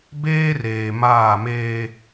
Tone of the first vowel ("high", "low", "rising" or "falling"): high